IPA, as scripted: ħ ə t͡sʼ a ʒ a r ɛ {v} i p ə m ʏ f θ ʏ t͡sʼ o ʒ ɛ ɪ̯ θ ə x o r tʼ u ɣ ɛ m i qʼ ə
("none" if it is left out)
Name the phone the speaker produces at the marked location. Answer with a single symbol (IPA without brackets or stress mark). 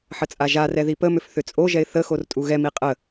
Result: ð